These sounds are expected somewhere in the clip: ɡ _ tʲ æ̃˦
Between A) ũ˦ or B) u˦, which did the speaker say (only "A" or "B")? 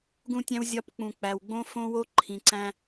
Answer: A